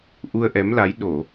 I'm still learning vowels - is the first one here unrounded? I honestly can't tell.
no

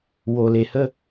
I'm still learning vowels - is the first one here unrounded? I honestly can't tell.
no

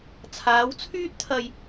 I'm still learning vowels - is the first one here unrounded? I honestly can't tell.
yes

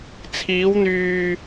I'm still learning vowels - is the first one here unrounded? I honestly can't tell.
yes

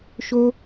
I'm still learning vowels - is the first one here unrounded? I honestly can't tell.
no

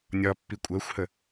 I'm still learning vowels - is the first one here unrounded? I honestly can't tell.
no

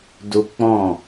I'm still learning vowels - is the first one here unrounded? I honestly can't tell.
no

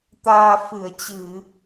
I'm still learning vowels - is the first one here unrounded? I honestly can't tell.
yes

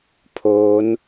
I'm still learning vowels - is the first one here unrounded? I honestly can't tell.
no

